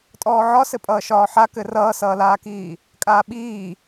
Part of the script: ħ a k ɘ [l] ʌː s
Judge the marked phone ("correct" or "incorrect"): incorrect